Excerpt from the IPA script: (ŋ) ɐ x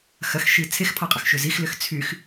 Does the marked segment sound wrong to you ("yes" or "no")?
yes